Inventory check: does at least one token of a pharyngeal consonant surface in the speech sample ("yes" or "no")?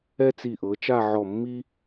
yes